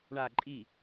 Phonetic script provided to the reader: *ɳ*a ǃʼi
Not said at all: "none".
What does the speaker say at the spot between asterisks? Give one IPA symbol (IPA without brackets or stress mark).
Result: ɳ